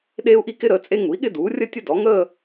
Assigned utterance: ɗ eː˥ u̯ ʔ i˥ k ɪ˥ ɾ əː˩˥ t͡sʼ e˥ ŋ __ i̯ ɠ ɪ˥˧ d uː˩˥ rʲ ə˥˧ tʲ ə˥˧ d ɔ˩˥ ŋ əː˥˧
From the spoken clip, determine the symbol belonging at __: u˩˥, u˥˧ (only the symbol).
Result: u˩˥